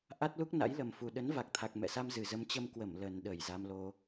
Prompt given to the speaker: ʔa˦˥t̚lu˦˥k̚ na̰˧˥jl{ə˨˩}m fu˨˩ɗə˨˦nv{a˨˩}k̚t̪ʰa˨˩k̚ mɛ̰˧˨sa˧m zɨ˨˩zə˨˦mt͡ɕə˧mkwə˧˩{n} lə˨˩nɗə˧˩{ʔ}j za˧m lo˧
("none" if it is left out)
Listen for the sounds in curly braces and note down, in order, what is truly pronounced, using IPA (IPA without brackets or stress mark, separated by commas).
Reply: ə˨˩, a˨˩, m, none